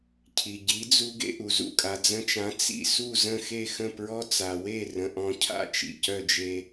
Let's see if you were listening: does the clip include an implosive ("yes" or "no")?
no